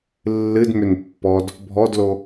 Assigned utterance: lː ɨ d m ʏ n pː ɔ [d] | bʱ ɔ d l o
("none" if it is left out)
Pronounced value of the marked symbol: d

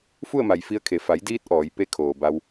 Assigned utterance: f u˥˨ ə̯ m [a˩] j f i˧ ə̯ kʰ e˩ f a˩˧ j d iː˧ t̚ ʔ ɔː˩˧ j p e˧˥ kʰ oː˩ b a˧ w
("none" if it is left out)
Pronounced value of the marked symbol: a˩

